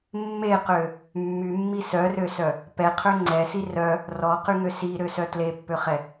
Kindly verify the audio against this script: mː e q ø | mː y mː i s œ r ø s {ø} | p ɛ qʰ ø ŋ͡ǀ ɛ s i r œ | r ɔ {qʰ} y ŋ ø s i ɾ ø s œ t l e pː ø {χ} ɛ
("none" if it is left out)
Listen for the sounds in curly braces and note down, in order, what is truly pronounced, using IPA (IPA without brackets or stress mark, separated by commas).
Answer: œ, q, χ